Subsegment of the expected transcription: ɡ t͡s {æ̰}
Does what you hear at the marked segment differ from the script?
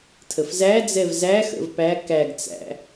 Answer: no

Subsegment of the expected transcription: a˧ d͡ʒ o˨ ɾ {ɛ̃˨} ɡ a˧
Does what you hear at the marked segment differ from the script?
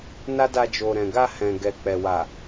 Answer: no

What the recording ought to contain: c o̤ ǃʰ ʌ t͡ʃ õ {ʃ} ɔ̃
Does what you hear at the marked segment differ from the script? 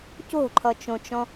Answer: yes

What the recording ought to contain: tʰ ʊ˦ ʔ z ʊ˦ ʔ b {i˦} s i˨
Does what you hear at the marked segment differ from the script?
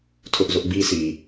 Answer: no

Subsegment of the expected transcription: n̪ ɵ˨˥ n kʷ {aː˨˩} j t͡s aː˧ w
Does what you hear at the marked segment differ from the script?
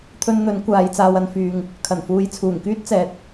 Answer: yes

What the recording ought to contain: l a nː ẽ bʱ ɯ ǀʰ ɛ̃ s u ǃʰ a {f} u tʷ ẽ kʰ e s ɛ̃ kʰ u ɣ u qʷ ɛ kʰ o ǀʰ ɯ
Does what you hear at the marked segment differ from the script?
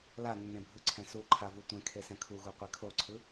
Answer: yes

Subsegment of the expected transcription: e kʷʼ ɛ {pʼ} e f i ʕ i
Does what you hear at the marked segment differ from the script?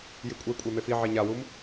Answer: yes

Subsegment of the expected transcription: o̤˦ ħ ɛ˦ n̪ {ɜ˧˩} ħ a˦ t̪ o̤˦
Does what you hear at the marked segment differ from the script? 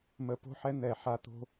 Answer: yes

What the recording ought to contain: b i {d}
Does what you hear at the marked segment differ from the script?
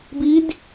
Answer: no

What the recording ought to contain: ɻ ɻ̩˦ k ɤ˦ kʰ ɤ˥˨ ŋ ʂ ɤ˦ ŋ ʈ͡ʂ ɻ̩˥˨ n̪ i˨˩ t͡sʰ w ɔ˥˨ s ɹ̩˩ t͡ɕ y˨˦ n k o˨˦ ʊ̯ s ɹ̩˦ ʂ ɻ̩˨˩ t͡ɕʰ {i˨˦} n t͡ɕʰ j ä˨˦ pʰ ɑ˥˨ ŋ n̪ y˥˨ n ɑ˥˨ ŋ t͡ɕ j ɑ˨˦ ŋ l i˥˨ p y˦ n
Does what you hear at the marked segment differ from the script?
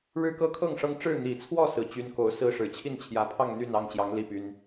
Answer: yes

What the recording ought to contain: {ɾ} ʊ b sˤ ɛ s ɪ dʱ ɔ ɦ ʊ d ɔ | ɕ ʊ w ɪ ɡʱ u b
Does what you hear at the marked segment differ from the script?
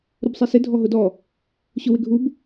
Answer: no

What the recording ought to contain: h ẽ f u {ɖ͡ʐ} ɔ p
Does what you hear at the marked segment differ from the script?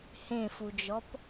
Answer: yes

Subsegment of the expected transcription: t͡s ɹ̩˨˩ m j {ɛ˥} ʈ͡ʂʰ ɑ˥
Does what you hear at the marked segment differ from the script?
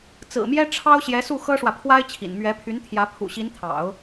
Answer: no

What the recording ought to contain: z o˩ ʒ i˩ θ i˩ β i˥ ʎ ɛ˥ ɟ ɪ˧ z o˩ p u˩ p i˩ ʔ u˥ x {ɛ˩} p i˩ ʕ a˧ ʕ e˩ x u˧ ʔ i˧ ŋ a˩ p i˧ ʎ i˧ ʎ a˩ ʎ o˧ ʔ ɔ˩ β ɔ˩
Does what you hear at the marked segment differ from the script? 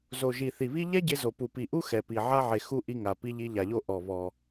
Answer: no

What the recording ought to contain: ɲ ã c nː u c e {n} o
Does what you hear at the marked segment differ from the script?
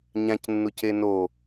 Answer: no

